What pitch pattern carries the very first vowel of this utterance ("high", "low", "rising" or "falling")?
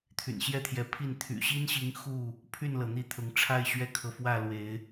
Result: low